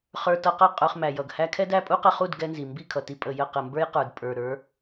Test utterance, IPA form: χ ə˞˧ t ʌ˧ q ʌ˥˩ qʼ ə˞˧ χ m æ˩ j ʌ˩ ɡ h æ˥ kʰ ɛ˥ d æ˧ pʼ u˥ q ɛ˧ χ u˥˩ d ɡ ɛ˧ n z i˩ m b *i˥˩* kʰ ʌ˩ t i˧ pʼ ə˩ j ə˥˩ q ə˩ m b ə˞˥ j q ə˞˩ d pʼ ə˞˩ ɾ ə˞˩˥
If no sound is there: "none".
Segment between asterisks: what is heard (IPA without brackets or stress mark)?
i˥˩